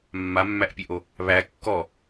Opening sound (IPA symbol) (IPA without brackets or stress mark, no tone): mː